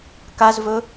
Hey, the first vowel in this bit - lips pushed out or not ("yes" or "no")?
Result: no